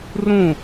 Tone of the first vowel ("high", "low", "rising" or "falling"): falling